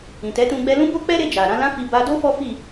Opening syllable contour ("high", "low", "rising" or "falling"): low